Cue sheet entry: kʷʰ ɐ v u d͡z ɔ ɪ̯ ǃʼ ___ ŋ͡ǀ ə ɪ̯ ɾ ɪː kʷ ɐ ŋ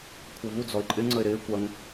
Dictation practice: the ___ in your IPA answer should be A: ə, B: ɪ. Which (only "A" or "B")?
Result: B